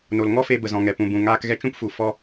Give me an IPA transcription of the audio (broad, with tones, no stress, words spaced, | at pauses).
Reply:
no˨lŋɔ˦fe˧ bə˨zɔ̃˨ŋɛ˨ pũ˨bũ˨ ŋaː˧kɣɛ˧t͡ʃũ˦pfu˨ fɔ˧